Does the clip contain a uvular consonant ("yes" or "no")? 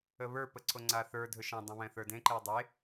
no